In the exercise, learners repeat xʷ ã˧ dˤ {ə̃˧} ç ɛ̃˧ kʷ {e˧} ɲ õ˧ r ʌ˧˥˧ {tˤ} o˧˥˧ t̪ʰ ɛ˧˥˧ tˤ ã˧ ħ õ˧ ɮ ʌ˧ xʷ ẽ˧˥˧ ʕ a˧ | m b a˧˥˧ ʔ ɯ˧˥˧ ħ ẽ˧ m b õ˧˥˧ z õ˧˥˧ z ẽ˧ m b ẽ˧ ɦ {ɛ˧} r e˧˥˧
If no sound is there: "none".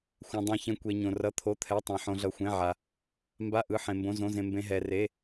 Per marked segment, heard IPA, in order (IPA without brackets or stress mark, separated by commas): ɛ̃˧, e˧, t̪ʰ, ɛ˧